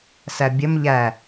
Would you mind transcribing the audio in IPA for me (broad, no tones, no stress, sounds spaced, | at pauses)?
s æ bʲ ə m ʎ æ